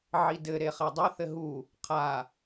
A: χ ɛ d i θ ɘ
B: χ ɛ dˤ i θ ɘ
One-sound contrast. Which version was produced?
B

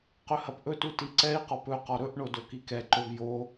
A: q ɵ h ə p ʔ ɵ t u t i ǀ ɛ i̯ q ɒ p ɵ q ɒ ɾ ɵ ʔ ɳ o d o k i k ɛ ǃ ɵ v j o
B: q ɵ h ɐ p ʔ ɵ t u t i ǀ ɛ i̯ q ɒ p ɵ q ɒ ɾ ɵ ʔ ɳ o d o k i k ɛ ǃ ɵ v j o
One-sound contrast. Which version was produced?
B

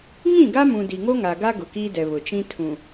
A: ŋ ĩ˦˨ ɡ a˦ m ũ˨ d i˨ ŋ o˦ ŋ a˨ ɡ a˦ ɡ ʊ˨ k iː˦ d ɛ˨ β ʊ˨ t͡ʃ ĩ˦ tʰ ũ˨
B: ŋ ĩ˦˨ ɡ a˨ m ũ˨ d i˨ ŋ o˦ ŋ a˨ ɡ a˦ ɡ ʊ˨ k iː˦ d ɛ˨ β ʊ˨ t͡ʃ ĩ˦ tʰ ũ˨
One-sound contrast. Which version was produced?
A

